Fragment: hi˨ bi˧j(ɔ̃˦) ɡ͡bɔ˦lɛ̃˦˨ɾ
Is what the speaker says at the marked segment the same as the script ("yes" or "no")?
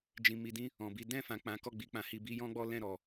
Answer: yes